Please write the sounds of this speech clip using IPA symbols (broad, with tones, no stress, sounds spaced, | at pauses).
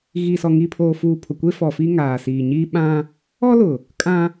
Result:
ɣ i˨ s ɔ˨ ŋ i˨ pʰ oː˨ f uː˨ pʰ ʊ˨ kʷ e˦ f ɔ˨ f iː˦ ŋ aː˨ s iː˨ ɲ iː˦ ɓ ã˦ | ɔ˦ l ʊ˨ | kʼ ã˦